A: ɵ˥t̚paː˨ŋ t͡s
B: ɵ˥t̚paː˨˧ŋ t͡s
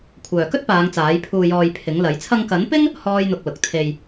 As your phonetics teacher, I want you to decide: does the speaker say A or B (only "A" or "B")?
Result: B